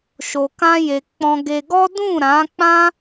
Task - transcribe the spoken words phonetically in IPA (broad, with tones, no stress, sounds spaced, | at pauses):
ʃ o˧ k ã˦ j e˧ k͡p ɔ̃˧ ɡ e˧ ɡ ɔ˦ d ũ˦˨ ɾ ã˨˦ k͡p ã˦